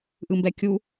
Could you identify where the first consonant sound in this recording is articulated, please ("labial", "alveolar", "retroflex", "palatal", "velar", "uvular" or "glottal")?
glottal